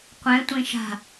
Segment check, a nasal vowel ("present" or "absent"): present